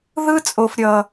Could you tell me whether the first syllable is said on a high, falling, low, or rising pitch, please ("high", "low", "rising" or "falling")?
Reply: high